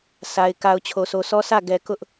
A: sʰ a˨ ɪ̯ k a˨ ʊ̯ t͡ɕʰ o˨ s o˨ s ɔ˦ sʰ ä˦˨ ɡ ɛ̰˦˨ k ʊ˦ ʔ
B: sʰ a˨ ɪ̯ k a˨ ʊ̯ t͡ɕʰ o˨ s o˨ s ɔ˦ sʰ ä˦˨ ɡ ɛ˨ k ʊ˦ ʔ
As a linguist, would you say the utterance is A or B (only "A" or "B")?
B